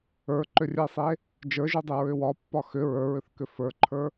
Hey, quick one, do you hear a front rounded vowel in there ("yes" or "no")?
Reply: yes